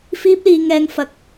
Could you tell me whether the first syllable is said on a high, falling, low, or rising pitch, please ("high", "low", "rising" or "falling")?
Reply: high